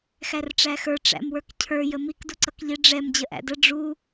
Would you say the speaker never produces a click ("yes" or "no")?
no